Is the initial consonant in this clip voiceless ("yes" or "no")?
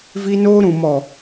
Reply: no